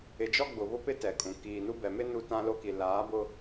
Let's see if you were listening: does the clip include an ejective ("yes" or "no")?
yes